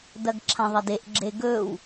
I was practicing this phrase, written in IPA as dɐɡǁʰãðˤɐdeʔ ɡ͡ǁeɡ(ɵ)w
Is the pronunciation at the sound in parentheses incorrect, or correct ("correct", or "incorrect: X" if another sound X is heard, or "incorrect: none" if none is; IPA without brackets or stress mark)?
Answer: correct